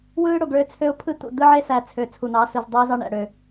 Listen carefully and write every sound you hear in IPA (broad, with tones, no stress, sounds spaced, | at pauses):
w ɯː˦ ɽ o˨ ɡ ɭ ø˦ t͡sʰ ø˦ ʊ̯ pʰ ɯ˦ t̪ ṵ˨ d̪ ɯ˦ ʕ e˦ s æ˨ t͡sʰ ø˨ t͡sʰ u˨ n̪ ɑ˨˦ s ɯ˨ z dˤ iː˦ z ɑ˦ ɳ æ̰˨ ɽ ø˨